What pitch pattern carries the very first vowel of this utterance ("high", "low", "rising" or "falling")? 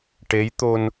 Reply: rising